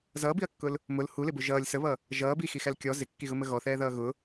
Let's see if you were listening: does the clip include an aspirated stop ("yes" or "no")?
no